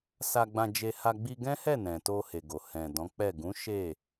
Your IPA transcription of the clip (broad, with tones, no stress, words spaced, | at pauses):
sa˧ɡ͡bã˧d͡ʒe˧ha˧ ɡ͡bi˧ ɡɛ̃˦hɛ˦˨ nɛ̃˨to˧he˨ɡo˨ hɛ̃˨dɔ̃˨˦k͡pɛ˦˨ ɡũ˨˦ ʃe˦˨